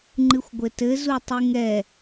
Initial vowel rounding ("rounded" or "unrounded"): unrounded